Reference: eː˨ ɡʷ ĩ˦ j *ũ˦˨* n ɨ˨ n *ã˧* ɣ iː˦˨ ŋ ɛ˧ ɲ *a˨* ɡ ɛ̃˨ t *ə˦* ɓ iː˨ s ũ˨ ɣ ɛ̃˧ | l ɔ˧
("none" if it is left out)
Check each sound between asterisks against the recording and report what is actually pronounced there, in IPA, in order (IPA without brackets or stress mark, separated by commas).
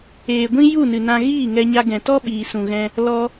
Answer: u˦˨, ã˧, a˧, ɔ˦